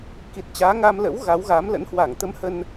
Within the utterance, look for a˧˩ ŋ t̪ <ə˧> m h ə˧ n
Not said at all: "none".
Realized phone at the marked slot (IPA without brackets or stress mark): ə˧